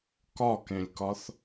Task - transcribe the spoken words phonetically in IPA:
k ɒ k ẽ lʲ k ɒ θ

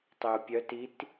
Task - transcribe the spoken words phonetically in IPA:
tˤ y u̯ pʲ œ t i t

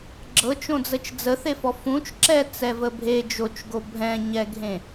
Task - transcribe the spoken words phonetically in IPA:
ɡ͡ǁ ɤ t͡ʃ õ d͡z ə t͡ʃ d͡z ə θ e f ɔ f ũ t͡ʃ ǁ ɛ t͡s ɛ v ə bʱ e d͡ʒ o t͡ʃ ɡ o bʱ ɛ̃ ɲ ɛ ɡʱ ẽ

